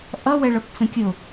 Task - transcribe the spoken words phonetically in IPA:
ʔʌwɛɭʌp t͡sə̃kʲʊ

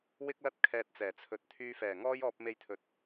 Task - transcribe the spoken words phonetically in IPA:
wɪ˥k̚lɐ˥t̚ kʰɛː˧t̚t͡sɛː˨˩ t͡sʰɵ˨˥t̚t̪ʰyː˧ fɛː˨˩ŋɔː˥jɔː˧p̚ me˧jt̪ʰɵ˨t̚

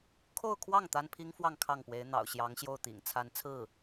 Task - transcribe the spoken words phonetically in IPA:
kʰo˥˧ʊ̯kʰwɑ˥˩ŋ t̪a˥npʰi˥ŋfwɑ˥˧ŋ kʰɑ˥˩ŋpwe˧˥ɪ̯ n̪ɑ̰˨˩ʊ̯ɕjɑ˧˥ŋɕjo˥˩ʊ̯t̪ḭ˨˩ŋ t͡sʰa˧˥nt͡sʰɹ̩˥˩

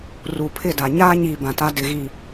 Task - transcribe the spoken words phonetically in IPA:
ru˨pʰɪ˦˨da˨ ɲaː˦ɲiː˨ bã˨ta˦ dɪ˨ɣi˨

